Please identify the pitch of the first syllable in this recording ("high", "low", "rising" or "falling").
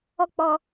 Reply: high